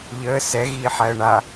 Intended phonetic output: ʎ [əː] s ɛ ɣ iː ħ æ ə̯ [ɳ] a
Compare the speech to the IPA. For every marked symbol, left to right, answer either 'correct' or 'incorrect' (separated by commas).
correct, correct